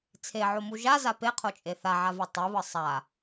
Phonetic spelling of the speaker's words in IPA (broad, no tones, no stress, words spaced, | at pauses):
t͡sʰeʕomu ʒaza peqʰot͡ʃʼe θaʕavo tˤiβɯ sˤa